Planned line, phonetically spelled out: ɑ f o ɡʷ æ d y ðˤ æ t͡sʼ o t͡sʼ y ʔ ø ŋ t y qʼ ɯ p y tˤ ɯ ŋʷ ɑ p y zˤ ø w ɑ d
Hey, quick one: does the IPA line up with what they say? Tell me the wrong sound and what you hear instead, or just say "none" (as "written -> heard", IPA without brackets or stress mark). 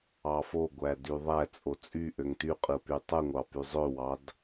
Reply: none